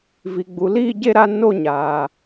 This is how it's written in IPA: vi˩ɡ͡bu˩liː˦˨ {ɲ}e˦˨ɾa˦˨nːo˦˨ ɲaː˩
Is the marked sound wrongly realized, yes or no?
yes